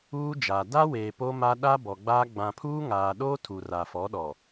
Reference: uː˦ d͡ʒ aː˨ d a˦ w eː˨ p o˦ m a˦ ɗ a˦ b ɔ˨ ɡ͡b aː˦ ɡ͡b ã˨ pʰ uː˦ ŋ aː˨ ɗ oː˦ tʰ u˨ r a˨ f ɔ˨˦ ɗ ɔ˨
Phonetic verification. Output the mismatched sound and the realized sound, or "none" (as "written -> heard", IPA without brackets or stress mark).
none